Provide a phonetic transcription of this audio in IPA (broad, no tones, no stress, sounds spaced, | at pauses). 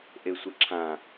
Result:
ʔ e sʷ ə ǁʰ ã